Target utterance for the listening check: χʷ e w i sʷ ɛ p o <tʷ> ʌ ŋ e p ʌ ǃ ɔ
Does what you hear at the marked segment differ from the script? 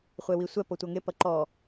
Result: no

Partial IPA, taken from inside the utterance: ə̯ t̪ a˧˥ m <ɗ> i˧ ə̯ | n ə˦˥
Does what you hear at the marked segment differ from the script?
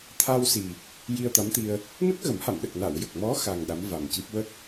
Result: yes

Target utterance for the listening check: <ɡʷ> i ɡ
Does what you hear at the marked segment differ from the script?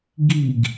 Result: yes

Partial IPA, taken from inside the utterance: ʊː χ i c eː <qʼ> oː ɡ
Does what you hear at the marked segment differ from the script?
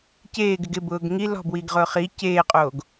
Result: no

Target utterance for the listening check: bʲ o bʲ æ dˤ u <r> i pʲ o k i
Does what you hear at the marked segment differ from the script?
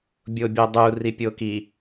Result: no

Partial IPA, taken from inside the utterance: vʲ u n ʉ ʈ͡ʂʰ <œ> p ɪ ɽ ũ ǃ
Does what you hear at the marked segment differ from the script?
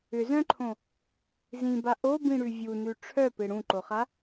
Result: no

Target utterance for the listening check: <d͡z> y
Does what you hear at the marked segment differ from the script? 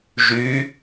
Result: yes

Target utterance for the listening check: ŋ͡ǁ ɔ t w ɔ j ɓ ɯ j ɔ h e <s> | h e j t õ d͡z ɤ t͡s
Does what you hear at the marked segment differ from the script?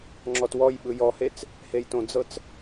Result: yes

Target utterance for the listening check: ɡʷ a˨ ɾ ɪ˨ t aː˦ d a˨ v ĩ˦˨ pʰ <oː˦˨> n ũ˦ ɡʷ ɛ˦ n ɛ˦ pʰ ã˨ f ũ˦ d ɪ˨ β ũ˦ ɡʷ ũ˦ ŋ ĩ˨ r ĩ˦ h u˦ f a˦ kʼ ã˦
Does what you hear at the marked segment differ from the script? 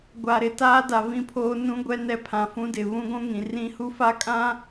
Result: yes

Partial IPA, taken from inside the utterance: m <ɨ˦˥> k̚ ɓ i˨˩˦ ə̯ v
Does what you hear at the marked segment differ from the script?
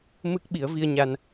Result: no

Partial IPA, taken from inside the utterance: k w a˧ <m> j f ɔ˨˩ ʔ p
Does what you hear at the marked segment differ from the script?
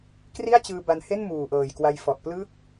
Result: yes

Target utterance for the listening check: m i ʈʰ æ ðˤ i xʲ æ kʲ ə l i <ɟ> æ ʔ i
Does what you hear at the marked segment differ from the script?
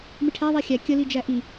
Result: yes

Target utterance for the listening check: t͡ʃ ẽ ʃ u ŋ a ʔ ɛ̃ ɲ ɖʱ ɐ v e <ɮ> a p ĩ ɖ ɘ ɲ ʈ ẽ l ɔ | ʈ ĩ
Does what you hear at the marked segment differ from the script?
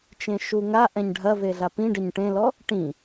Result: no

